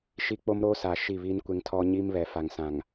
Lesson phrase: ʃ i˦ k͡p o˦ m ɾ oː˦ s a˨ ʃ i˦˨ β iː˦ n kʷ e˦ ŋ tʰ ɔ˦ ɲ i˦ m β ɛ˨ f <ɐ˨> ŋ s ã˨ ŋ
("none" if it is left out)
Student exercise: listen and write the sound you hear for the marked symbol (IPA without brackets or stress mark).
a˨